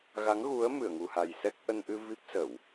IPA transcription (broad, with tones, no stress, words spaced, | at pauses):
ɣa˨˦ŋɣu˨˦ə̯ mɨ˧˩ə̯ŋu˨˩ha˨˩jsɛ˦˥k̚ ʔə˧nʔɨ˧ vi˦˥p̚sə˧˩˨w